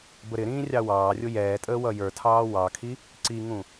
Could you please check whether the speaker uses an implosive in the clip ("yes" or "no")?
no